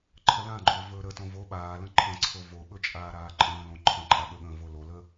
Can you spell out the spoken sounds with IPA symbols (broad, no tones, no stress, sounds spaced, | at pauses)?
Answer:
ǃʰ ə l ã ɡ͡ǃ ɵː v ɵː ɾ ə t õ v o ɓ aː l ə̃ ǃʰ ə̃ ǀʰ o v o ɓ ɵ t͡ʃʼ aː ɾ aː ǃʼ ə̃ː l õ ǃʰ ə̃ ǃʼ a ɠ ɵ ɠ ə̃ː v o l o l ə